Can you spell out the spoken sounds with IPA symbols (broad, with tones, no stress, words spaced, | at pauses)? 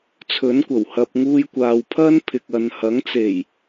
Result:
t͡sʰɵ˨˥nkʷɐ˨˩w hɐ˨p̚ ŋuː˧jkʷaː˨wpʰɐ˥n pʰɪ˨k̚ɐ˨nhɐ˨˥ŋ t͡se˨˩j